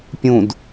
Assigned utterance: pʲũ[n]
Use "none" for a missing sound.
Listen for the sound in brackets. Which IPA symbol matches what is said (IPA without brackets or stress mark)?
d